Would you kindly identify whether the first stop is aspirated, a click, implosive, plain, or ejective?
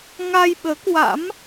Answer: implosive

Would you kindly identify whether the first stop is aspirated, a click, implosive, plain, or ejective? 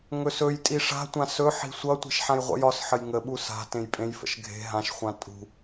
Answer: ejective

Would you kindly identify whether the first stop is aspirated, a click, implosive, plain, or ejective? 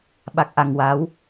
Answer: implosive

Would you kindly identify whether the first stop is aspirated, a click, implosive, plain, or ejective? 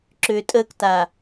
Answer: click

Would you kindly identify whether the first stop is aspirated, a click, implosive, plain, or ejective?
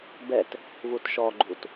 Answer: plain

